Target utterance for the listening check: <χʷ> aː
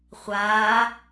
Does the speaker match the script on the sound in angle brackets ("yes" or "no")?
yes